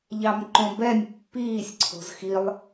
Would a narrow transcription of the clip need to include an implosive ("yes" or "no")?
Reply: no